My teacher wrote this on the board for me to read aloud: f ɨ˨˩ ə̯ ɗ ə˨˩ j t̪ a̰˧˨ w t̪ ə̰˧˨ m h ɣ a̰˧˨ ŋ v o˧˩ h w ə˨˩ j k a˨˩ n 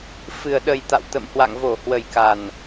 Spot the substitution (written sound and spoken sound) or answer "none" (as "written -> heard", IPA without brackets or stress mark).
ɣ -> w